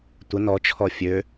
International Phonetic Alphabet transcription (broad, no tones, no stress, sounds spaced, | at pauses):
tʷ ə n ɔ t͡ʃʰ ɔ fʲ ø